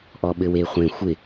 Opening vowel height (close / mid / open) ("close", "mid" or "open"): mid